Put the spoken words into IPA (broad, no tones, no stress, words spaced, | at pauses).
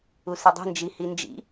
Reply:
usɯdˤi̤ nd͡ʒihind͡ʒḭ